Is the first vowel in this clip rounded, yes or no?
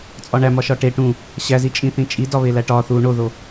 yes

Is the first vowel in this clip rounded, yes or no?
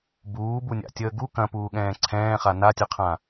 yes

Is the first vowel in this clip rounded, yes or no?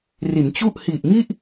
no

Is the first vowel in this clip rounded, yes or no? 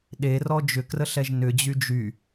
no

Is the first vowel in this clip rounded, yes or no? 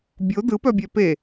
yes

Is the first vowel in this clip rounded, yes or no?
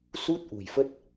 yes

